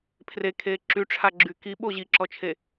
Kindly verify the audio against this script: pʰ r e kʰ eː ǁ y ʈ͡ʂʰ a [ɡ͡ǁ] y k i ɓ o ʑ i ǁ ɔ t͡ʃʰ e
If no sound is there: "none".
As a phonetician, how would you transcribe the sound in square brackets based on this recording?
ɡ͡ǁ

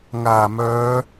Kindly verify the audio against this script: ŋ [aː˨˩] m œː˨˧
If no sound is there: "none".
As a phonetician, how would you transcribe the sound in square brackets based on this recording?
aː˨˩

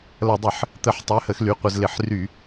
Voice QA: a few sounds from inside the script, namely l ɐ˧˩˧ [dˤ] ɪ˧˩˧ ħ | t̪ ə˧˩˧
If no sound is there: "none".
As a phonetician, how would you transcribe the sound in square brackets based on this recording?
dˤ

